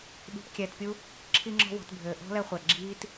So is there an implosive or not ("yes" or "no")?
yes